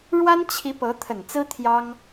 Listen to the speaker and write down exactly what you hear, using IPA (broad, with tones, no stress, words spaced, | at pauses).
ɻwa˥nt͡ɕʰi˧˥ pɤ˧˥t̪ʰə˨˩nt͡sɹ̩˥ t̪ʰjɑ˥ŋ